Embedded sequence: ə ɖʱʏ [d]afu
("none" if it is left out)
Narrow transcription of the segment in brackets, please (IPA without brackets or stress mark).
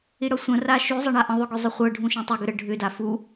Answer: d